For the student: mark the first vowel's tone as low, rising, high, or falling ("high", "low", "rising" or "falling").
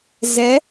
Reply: rising